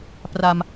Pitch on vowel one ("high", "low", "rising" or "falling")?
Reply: low